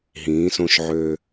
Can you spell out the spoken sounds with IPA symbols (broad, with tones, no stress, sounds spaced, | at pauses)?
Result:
ɦ ĩː˩˧ s õ˧˩ ʃ ʕ øː˧